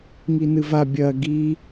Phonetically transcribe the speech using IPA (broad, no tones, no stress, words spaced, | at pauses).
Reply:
ŋinɨva bʲɐ ɡi